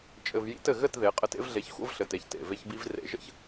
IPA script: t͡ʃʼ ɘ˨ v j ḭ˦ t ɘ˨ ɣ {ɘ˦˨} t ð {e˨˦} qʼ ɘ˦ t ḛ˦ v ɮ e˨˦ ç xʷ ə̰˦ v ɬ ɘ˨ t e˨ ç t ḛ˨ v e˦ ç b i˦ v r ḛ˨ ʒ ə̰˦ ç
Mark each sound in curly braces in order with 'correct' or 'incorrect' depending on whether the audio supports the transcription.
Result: correct, correct

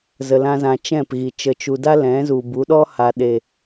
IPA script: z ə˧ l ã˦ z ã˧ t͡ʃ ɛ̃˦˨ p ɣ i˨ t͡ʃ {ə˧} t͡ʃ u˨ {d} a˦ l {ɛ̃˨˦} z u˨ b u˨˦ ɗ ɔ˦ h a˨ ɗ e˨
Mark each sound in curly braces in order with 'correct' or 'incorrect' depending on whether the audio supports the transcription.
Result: incorrect, correct, correct

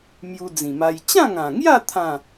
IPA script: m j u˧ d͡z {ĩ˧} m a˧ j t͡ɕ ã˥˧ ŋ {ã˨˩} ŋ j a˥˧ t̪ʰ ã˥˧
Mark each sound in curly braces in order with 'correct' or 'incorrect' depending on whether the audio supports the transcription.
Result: incorrect, correct

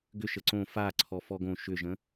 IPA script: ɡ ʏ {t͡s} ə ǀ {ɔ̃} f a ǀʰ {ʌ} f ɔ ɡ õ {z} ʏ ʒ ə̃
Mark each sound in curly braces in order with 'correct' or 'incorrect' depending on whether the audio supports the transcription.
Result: incorrect, incorrect, incorrect, incorrect

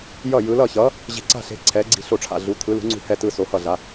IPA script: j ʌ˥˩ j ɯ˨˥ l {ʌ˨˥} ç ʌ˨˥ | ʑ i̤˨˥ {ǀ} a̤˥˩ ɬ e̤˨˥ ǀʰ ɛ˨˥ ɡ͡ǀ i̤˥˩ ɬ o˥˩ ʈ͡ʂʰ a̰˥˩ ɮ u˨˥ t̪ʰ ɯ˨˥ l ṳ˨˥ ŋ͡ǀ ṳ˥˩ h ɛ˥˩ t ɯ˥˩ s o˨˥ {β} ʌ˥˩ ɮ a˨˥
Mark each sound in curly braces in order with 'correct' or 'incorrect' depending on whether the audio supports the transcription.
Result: incorrect, correct, incorrect

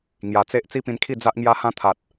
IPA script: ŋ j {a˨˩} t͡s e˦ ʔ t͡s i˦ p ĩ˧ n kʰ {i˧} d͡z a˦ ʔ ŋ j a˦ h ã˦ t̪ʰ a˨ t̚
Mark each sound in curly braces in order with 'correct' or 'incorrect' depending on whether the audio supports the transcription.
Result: correct, incorrect

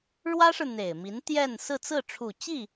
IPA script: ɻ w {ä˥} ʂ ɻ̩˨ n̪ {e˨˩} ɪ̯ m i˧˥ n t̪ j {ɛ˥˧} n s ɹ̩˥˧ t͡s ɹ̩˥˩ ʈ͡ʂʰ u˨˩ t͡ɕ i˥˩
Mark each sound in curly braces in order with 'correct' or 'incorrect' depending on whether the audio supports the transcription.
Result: correct, correct, correct

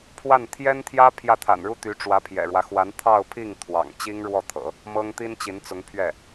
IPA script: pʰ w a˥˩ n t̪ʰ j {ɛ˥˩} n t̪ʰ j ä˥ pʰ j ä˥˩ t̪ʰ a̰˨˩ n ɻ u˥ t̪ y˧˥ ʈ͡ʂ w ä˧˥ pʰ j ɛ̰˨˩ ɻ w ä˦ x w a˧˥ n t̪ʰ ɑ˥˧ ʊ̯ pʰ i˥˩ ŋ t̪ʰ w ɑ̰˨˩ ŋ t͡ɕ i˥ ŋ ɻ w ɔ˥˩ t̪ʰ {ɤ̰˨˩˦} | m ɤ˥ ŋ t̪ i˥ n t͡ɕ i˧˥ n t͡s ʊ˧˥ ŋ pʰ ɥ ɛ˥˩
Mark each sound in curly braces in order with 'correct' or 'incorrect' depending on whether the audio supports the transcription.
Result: incorrect, correct

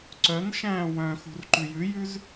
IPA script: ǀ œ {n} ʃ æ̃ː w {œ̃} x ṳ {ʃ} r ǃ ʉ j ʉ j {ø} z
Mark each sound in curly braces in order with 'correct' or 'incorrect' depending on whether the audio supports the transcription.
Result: correct, correct, incorrect, incorrect

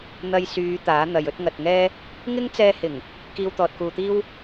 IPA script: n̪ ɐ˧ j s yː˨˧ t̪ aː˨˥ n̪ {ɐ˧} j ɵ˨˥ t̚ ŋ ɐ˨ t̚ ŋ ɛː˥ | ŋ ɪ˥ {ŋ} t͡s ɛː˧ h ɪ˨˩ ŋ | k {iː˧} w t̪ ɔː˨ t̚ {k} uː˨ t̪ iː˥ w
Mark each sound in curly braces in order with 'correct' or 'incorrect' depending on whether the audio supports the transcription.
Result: incorrect, correct, correct, correct

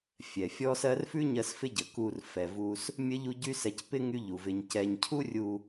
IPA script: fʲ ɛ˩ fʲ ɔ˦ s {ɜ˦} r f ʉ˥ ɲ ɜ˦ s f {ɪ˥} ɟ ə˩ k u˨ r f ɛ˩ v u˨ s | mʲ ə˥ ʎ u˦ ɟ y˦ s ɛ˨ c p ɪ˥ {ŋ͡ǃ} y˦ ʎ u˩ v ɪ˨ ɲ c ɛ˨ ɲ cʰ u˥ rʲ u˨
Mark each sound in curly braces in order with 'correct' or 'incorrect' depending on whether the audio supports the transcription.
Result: correct, correct, incorrect

